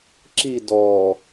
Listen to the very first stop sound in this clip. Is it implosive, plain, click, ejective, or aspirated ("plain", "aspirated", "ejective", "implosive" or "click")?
click